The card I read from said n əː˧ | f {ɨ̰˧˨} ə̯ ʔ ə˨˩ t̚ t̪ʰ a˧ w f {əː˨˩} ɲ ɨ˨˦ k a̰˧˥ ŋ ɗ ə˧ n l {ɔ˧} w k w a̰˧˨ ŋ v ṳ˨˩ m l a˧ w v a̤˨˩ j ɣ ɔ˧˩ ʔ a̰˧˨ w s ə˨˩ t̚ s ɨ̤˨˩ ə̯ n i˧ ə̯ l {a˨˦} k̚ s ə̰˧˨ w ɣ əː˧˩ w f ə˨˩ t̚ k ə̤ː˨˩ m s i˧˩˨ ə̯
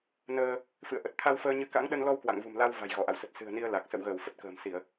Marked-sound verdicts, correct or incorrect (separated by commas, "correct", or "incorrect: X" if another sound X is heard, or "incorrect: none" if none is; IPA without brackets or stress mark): correct, incorrect: əː˧, correct, incorrect: a˨˩